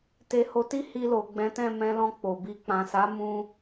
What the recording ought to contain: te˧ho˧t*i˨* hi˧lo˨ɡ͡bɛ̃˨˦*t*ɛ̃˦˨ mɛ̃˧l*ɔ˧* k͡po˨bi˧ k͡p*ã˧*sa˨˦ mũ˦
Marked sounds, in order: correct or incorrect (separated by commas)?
incorrect, correct, incorrect, incorrect